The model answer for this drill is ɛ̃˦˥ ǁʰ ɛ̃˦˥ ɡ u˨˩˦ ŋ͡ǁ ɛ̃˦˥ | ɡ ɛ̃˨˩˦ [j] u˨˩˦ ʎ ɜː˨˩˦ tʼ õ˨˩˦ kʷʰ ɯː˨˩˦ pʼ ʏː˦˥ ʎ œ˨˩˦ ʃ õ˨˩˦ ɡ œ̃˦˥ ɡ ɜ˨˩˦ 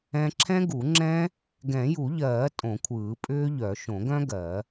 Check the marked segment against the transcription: correct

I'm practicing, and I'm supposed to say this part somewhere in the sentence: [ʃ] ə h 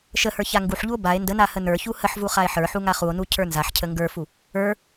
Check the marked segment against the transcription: correct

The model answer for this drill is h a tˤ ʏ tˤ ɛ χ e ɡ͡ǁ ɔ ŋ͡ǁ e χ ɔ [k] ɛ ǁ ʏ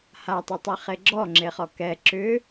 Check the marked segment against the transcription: correct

